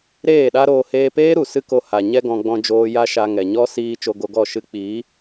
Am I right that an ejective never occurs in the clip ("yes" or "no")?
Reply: yes